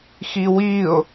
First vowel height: high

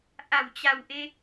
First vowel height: low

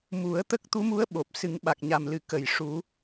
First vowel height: high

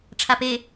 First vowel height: low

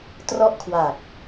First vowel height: mid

